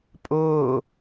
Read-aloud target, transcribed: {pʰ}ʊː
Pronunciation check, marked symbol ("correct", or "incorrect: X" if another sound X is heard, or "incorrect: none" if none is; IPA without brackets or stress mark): incorrect: pʼ